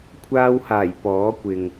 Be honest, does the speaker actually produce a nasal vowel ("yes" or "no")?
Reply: no